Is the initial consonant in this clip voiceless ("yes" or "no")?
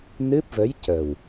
no